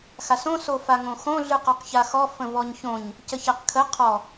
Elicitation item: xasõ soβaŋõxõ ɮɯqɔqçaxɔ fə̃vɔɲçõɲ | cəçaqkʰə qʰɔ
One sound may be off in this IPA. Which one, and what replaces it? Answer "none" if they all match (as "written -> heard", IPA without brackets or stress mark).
β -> f